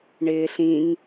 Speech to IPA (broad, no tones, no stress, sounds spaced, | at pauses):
ɳ ɪː ɬ ĩ ŋ